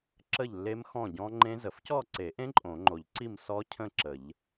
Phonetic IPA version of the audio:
ǁ ə˥˨ ʎ lː e˦˥ m x ɔ̃˥˨ ɟ ɔ̃˦˥ ŋ͡ǃ ẽ˦˥ z ə˨˩˦ f c ɔ˥˨ ǀ e˨˩˦ ʔ ẽ˦˥ ǃʼ õ˨˩˦ ŋ͡ǃ o˨˩˦ ʎ ǀ i˥˨ m s ɔ˦˥ cʰ ə̃˥˨ ǁ ə˨˩˦ ʎ

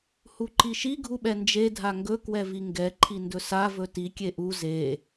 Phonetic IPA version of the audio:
h u ǃ i ʃ i ɡʱ u ɓ ɛ n d͡ʒ e dʱ a ŋ ɡ ɵ k w ɛ v i ŋ ɡ ɛ ǃʰ i n d ɵ s a v ɵ t i kʲ e ʔ u z e

